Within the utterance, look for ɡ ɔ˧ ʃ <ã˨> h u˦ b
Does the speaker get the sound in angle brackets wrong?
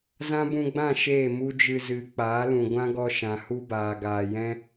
no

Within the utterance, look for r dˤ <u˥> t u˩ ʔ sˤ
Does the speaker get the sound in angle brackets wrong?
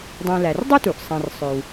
no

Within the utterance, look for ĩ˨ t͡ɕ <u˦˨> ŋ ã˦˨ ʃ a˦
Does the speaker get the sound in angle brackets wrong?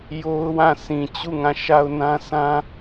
no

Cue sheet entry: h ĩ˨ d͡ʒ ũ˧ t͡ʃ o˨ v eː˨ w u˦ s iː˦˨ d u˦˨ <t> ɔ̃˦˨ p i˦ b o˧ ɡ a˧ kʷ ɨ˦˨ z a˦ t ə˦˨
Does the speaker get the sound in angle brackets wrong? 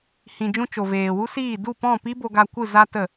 yes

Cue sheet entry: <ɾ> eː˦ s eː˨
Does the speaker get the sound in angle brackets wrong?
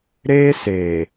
no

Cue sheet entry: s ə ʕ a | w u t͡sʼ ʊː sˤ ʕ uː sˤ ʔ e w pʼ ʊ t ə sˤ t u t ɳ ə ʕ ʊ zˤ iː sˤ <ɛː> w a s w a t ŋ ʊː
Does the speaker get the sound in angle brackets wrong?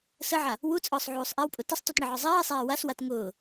yes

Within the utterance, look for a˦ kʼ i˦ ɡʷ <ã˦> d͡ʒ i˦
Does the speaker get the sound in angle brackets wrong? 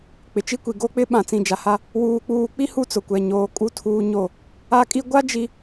yes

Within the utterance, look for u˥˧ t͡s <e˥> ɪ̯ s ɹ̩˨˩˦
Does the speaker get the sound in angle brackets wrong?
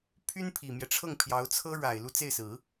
yes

